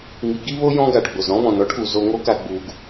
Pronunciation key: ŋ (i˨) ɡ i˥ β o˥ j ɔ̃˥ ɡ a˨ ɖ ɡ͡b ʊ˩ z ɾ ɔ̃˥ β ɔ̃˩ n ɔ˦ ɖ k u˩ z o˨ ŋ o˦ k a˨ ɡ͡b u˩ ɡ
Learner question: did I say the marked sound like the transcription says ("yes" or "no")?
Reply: yes